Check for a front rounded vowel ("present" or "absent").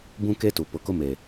absent